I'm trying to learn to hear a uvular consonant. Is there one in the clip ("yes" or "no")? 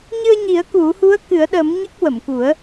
no